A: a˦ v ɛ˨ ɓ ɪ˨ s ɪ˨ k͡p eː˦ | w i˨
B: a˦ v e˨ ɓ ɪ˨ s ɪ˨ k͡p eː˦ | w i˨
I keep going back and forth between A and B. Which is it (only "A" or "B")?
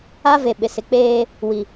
B